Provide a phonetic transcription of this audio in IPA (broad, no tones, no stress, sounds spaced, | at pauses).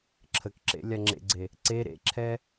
ǁʰ ə k ǁ ḛ lʲ a ŋ͡ǁ ḛ ɡ͡ǀ e | ǀ e ɾ ḛ ǁʰ ɛ